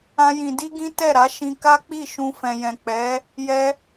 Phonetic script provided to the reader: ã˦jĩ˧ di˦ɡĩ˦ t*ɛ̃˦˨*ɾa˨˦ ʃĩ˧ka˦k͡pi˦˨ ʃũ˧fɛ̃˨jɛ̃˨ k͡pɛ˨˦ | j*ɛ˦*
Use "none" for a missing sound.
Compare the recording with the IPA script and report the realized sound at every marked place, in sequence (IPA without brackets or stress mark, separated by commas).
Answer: ɛ˦˨, ɛ˦